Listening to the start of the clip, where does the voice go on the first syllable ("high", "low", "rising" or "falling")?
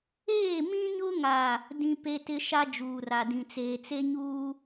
falling